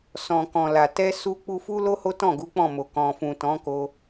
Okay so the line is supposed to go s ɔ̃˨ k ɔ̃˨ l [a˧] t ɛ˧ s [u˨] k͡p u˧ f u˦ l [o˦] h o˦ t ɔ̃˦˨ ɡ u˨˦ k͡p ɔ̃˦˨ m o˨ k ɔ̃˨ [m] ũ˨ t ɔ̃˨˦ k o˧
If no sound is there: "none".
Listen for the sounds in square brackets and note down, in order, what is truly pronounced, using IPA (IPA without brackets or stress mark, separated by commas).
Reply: a˨, u˧, o˦, f